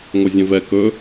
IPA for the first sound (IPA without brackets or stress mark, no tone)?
ŋʷ